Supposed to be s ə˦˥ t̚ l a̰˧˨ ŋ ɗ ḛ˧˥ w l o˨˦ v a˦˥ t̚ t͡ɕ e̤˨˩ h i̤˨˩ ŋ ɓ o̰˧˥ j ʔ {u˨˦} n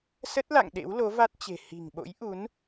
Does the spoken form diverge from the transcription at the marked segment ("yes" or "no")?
no